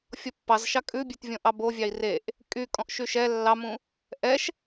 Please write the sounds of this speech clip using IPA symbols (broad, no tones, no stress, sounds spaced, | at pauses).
fʲ ɔ pː ɑ z ʃ ɑ kʼ ʉ bʲ e t vʲ ɔ̃ ʔ ɑ b o vʲ ɑ i̯ r e ʔ | kʼ y kʼ ɔ̃ ʔ ʃ y ʃ ɛ lː ɑ m ũ | ʔ ɛ ʃ